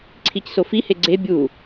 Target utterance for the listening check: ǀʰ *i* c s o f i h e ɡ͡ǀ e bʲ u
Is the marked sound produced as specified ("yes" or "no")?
yes